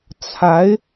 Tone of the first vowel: rising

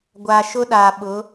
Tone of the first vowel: low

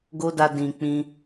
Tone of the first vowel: high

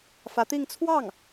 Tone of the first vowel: rising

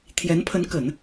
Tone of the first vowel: rising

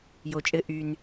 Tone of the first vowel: low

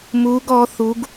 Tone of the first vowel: rising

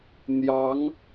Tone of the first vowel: rising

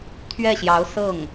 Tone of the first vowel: falling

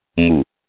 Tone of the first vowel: low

